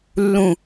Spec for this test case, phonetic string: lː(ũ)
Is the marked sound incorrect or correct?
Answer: correct